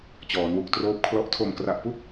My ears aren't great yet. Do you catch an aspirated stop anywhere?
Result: yes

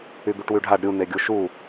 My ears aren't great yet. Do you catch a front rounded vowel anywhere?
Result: yes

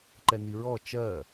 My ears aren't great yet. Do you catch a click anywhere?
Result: yes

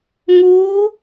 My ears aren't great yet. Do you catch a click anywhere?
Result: no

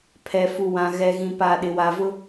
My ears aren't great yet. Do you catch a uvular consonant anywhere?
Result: no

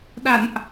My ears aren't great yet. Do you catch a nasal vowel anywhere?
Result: no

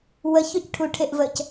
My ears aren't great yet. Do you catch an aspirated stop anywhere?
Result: yes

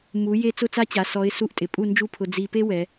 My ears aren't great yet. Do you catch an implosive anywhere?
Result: no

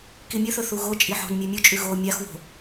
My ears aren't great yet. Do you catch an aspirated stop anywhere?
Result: no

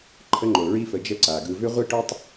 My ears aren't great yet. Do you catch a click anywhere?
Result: yes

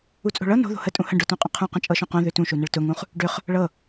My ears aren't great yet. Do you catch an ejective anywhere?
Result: yes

